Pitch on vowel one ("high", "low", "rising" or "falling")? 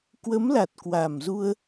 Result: rising